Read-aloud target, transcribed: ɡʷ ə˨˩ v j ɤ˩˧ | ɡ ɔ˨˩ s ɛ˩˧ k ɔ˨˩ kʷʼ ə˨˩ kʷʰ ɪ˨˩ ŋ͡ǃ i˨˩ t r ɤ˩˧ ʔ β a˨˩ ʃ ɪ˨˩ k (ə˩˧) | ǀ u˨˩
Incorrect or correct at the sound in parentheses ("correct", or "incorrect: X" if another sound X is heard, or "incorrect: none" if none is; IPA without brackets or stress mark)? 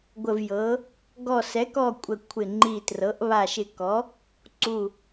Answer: incorrect: ɔ˩˧